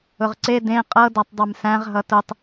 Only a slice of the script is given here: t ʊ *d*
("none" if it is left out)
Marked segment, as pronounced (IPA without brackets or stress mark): tˤ